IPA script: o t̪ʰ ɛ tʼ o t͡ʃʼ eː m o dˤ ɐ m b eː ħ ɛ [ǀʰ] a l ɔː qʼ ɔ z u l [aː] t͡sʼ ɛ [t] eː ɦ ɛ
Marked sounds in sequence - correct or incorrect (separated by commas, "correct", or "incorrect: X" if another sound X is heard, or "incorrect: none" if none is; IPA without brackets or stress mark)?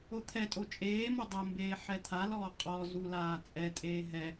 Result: incorrect: t̪ʰ, correct, incorrect: tʼ